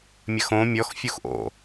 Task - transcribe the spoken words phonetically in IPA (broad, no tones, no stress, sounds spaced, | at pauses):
mʲ ɐ x õ mʲ ɔ x fʲ u x ʔ o̰